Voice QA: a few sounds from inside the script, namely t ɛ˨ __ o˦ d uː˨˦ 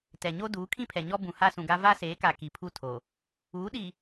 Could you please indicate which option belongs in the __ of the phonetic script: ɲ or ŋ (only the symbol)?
ɲ